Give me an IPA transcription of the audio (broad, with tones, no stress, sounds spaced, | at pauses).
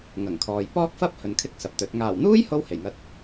ŋ ɐ˨˩ ŋ kʰ ɔː˨ j p ɔː˥ k̚ f ɐ˥ p̚ h ɵ˨ n kʰ ɪ˥ k̚ s ɐ˨ p̚ t̪ ɵ˨˥ t̚ ŋ aː˨˩ w n̪ uː˥ j h o˥ w h e˨˩ j ŋ ɐ˧ t̚